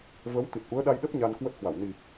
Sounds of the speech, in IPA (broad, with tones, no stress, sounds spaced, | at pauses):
v ə˨˦ w t̪ i˨˩ t̚ ʔ u˨˦ ə̯ ɗ a˧ j ɗ ə˦˥ p̚ ɲ a˧ n k w ə˦˥ t̚ h w a˧˩ w n i˨˩